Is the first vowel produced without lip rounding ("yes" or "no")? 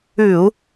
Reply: no